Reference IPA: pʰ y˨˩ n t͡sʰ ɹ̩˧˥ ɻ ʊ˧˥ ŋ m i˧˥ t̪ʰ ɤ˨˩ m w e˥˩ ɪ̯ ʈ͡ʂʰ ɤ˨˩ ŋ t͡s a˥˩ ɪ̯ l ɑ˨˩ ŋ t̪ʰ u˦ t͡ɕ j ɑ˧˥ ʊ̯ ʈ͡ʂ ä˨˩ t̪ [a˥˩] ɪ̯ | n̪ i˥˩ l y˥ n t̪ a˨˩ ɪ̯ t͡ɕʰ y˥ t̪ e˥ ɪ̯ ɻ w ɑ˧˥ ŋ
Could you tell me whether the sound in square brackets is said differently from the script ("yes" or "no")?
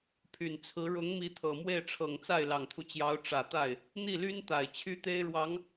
no